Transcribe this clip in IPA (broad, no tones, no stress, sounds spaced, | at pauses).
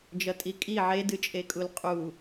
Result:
d͡ʒ ʌ tʼ i kʼ i ʕ e d ɨ t͡ʃʼ e kʼ u l qʼ u